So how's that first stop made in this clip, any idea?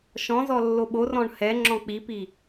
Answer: implosive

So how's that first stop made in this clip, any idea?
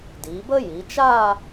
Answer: plain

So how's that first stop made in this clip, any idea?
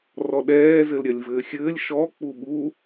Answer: implosive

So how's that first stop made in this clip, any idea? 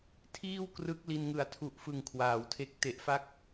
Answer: aspirated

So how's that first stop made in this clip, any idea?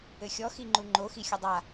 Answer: click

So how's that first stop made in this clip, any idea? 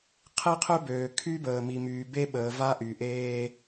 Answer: aspirated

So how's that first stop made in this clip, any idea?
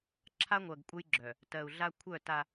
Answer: click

